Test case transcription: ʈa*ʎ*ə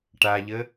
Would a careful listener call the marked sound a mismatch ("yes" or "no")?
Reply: no